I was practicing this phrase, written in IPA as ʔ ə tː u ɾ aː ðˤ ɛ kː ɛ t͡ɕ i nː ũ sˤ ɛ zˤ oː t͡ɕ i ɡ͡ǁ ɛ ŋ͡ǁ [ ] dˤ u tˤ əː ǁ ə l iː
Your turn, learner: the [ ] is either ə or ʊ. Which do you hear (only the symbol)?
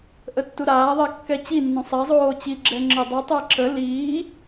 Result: ə